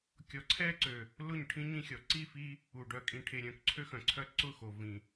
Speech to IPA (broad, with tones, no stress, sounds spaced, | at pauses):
kʲ ɔ˨ ǀʰ ɛ˦ ǀ ø˨ | l ʊ˦˨ ɲ ʈʰ ĩ˦ ɲ ĩ˦ xʲ ɔ˨ ǀ i˦˨ f i˦ | u˨ ɖ œ˨ kʼ ĩ˨ ʈʰ e˨ ɾʲ œ̃˨ k ǀʰ ø˦ x œ̃˨ ǀʰ œ˦ ǀ ʊ˦˨ x o˨ v ĩ˨